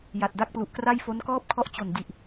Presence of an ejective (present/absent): absent